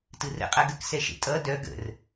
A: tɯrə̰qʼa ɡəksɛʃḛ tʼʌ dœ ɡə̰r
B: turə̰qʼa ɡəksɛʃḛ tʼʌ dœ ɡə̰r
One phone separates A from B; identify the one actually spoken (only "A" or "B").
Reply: A